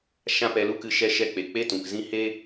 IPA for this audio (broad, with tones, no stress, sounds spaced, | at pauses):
ʃ ã˦ p ɛ˧ l u˦ k ɨ˧ ʃ ɛ˧ ʃ ɛ˧ k͡p e˨ k͡p e˦ t ũ˨ k z ĩ˦ h e˦